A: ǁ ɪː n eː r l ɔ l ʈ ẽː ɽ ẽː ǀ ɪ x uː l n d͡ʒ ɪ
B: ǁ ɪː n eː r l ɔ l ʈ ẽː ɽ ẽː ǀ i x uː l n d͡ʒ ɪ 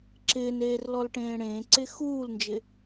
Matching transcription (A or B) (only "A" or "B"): A